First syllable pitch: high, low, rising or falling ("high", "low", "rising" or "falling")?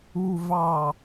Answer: low